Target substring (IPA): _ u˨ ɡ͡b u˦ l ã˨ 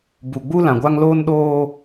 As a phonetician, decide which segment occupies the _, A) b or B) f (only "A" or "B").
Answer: A